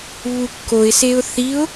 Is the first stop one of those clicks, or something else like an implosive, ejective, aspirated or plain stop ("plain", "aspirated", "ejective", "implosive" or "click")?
plain